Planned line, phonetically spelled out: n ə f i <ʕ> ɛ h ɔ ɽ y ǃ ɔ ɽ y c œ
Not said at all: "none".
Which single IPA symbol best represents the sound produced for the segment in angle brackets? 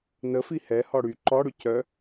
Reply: h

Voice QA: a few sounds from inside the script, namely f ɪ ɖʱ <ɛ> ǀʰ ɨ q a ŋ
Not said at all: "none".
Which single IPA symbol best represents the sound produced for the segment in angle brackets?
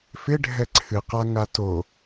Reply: ɛ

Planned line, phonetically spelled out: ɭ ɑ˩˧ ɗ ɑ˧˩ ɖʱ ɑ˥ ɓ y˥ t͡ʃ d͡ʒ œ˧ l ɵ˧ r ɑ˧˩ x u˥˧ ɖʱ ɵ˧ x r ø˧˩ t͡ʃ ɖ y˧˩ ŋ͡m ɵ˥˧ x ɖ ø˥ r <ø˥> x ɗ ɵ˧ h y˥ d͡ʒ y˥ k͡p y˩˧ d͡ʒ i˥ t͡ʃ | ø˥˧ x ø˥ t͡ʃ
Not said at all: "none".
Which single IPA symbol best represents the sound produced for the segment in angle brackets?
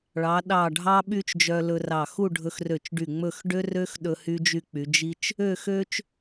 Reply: ø˥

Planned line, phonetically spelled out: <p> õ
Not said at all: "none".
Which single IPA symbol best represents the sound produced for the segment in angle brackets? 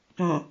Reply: p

